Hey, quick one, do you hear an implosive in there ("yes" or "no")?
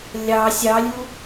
no